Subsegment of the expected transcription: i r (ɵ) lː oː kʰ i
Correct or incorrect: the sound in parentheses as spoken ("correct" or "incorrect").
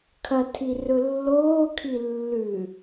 correct